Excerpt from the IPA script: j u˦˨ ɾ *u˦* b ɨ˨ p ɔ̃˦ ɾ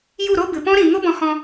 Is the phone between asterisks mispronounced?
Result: yes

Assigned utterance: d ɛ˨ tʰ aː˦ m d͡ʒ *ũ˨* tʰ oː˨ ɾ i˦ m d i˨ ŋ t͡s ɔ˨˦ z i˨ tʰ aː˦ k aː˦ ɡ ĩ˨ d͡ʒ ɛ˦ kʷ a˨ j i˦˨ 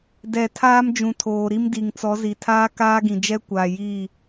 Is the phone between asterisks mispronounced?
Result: no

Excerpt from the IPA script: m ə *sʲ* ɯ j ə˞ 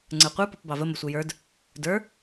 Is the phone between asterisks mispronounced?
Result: yes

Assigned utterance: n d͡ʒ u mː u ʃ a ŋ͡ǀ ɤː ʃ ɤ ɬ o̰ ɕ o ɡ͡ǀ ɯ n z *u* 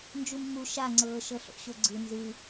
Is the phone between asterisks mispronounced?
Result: yes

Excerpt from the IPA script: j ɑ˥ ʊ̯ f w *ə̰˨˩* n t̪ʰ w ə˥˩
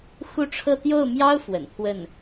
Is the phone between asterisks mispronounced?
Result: no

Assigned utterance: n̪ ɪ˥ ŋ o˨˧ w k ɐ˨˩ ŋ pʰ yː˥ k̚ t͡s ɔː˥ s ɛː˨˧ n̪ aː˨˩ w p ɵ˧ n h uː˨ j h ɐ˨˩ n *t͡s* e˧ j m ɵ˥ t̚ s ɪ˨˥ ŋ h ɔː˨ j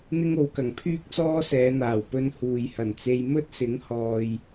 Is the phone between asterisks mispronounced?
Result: no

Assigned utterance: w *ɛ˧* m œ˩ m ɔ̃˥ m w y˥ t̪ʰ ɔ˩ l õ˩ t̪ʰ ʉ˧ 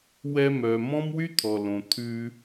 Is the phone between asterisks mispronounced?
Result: no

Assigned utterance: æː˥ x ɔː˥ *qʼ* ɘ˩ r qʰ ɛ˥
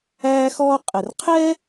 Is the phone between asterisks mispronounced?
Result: no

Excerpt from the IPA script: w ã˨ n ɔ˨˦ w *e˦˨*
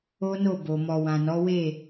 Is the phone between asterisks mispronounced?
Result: no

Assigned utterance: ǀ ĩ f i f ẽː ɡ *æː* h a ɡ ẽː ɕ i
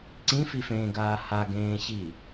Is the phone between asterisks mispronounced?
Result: yes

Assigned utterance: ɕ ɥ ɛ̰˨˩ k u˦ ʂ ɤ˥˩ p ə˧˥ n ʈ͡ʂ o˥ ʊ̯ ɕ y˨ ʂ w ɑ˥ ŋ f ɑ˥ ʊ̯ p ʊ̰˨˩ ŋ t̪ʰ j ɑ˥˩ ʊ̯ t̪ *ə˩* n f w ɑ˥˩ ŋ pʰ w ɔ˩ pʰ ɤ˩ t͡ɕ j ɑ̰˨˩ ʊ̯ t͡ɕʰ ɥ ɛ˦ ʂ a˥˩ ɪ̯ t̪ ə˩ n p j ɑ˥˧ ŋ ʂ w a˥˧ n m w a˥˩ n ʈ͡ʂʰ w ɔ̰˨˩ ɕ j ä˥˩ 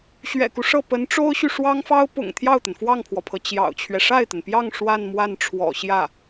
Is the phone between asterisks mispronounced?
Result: no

